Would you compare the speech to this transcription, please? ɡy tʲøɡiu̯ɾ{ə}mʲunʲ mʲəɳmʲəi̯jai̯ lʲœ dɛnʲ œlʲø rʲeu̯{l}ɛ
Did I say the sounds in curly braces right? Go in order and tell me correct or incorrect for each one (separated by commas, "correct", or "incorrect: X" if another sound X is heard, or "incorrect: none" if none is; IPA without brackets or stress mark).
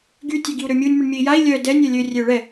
incorrect: ø, incorrect: ɭ